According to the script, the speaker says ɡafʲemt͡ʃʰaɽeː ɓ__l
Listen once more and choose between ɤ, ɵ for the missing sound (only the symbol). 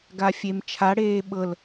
ɤ